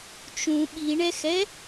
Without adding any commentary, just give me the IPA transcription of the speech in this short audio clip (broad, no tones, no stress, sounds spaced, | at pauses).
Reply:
t͡ʃ ũ ɓ i ɳ ɛ x ɛ